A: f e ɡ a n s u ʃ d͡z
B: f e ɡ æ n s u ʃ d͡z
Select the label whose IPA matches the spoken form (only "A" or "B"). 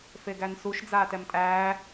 B